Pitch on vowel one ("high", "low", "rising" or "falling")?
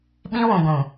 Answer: high